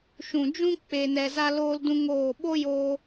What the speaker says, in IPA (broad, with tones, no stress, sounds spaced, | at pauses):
ʃ ũ˨ d͡ʒ ũ˦ k͡p e˨ n ɛ˨ z a˧ l oː˦ l d ũ˦ ŋ oː˦˨ ɓ o˦ j oː˧